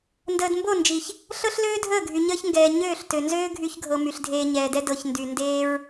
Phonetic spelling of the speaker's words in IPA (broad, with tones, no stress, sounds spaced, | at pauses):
n d əː˨ d m b o˦˨ n d͡ʒ i˨ ç | ɬ ɤ˦ ɬ l øː˦ dʱ əː˦˨ ɡʱ y˨ ɲ əː˦ ç ŋ ɡ ɛː˨ ɲ øː˦˨ ɬ t ø˨ n z øː˦ ɡʱ y˧ ç ɡʱ ɤ˨ m y˨ ɬ dʱ eː˧ ɲ ɛː˨ d ɛ˦ d ɤ˨ ç n d y˨ n d eː˦ ɹ